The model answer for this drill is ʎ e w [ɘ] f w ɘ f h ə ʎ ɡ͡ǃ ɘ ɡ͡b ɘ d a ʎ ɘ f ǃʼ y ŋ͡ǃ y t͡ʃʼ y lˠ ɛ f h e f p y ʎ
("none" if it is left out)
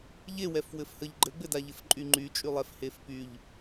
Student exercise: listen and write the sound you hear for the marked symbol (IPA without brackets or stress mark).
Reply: ɛ